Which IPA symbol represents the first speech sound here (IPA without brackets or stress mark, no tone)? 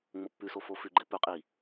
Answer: ŋ͡m